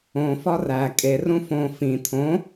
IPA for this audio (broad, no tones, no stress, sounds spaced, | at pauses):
õ f ɒ r æ kʼ e r ũ f õ f ĩ t̪ʰ õ